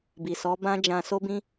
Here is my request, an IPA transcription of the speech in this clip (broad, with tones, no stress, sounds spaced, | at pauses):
b i˨ s ɔ˨˦ b ã˦ d͡ʒ ã˧ s o˦ b ĩ˦